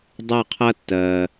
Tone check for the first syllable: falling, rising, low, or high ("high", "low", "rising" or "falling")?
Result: falling